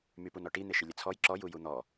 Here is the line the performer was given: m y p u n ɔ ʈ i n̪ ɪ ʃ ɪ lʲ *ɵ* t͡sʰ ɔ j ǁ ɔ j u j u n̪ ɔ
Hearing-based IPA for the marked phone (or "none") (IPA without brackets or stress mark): ə